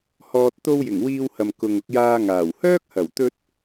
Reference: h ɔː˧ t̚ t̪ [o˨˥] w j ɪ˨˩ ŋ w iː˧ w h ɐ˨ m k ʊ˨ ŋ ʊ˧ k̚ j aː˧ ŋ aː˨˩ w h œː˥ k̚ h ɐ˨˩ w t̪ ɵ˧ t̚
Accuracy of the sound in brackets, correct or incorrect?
incorrect